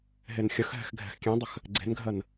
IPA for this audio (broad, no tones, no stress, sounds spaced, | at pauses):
ɦ e n xʲ ə x ɦ ɛ̤ x ɡʱ ɛ̤ x kʲ ẽ dˤ ə x | ɡ͡ǀ e̤ n ɡʱ ɜ n